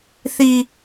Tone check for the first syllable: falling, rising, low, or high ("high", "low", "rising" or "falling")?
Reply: high